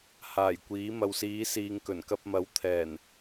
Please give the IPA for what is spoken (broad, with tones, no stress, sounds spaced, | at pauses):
h aː˨˩ j kʷ iː˨˥ m ɐ˨ w s iː˨˧ s iː˨ ŋ k ɵ˨˩ n k ɐ˧ p̚ m ɐ˨˥ w t̪ʰ ɛː˨˩ n